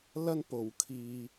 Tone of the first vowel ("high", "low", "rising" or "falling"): high